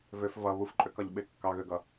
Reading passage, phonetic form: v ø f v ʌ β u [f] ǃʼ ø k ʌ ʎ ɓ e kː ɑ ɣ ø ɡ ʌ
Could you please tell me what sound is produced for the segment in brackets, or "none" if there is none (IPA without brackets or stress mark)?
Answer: f